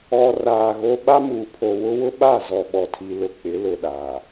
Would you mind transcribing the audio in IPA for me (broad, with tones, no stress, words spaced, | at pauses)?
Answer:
ɔ˨raː˨ ɣo˦ ɓa˦muː˨pʰo˨wʊ˦ wʊ˦ɓa˦˨zɔ˨ɓɔ˨ tʰi˨lʊ˨ k͡pɪ˨˦ lʊ˨ɗa˨